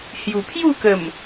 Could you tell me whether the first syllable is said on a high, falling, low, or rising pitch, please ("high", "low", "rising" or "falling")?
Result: low